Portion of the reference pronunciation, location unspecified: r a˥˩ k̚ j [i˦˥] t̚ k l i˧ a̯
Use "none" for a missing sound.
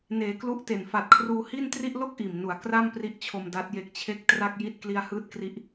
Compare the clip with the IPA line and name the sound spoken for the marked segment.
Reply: i˥˩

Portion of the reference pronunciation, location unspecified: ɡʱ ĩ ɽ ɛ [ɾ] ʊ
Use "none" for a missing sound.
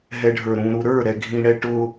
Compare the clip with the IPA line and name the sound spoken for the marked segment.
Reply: ʈ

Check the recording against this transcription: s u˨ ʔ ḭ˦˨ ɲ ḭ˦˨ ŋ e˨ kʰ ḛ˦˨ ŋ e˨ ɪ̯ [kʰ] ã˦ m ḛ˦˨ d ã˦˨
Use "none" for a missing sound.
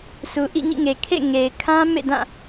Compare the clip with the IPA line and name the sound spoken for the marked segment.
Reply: kʰ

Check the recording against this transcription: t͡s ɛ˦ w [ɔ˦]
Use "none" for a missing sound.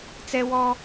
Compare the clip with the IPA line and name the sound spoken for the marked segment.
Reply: ɔ˦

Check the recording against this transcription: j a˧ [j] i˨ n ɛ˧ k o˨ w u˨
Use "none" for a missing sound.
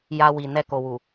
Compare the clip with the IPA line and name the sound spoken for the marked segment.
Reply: w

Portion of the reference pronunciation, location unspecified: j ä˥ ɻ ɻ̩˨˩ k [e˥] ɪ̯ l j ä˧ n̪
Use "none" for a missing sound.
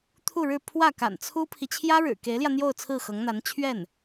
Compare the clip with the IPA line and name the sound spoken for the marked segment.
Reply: e˧˥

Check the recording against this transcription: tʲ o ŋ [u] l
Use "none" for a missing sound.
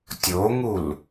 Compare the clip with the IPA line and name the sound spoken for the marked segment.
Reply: u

